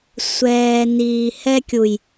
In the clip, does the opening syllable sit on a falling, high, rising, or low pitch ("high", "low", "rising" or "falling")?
low